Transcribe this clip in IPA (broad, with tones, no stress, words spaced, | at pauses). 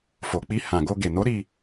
fo˨k͡pi˧ hã˨ɡo˧ ɡe˨no˨˦ ɾi˧